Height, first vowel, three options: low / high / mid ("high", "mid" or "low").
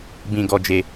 high